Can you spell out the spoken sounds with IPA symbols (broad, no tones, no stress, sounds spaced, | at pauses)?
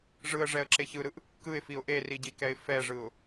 ʐ ɯ ə̯ ʐ ɛ ə̯ ǁ e ç ɯ ɾ ɯ ʔ | k ɯ ɪ̯ f i ʊ̯ ʔ e r i ɟ i k ɛ ɪ̯ f ɛ ʐ ɯ ʊ̯